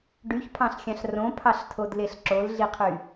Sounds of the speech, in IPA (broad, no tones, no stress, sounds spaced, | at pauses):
ɖ y ç pʰ ɑ̃ ɬ xʲ ɑ̃ ɬ r õ pʰ ɑ ɬ tʰ o d l e ɬ ǁ o l ɮ i qʰ y